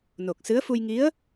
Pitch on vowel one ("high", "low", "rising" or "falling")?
low